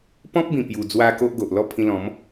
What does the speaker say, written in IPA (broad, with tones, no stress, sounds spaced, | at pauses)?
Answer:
p ɔ̃˦ p̚ b ĩ˨˩ p j u˨˩ d͡z w a˧ k o˦ ʔ ɡ o˨ ʔ l ɔ˥˧ pʰ ĩ˧ l ɔ̃˨˦ m